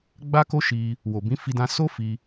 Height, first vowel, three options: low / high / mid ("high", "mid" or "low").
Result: low